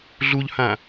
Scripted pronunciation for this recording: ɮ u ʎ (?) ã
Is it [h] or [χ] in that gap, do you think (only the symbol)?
h